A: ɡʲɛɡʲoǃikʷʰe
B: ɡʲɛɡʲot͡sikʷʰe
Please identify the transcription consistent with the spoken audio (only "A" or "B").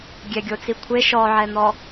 B